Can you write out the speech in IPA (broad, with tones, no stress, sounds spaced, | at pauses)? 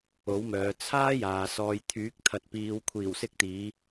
o˨˥ w m œː˨˧ t͡sʰ aː˥ j aː˨ s ɔː˨ j t̪ʰ yː˨˥ k̚ t̪ʰ ɐ˨ t̚ p iː˨˧ w kʷʰ iː˨˩ w s ɪ˧ k̚ t̪ iː˨˧